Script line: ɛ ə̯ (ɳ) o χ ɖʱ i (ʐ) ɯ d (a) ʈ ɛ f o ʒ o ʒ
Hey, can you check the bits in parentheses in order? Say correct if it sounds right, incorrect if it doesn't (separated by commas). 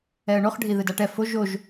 correct, incorrect, correct